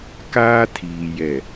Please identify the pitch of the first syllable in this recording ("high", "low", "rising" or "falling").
high